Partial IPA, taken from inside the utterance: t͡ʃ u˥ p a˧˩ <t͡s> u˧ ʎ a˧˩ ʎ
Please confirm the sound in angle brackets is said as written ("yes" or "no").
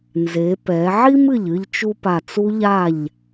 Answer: yes